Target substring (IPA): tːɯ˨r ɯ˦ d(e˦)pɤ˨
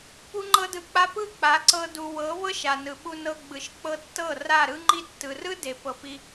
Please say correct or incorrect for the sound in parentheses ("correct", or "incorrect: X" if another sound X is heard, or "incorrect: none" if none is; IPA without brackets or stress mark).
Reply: incorrect: e˨